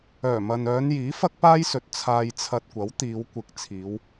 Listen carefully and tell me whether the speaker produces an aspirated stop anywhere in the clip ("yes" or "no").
yes